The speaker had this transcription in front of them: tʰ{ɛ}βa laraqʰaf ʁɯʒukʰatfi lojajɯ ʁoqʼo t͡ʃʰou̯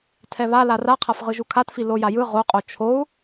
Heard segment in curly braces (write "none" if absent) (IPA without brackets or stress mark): ɛ